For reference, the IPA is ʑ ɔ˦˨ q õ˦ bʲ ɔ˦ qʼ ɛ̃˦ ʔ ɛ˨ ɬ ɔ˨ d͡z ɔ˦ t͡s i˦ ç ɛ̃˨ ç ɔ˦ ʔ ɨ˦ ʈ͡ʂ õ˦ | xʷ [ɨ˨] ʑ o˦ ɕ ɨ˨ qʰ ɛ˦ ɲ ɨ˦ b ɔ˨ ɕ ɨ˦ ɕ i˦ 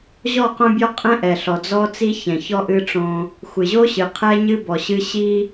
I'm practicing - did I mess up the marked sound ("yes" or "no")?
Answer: no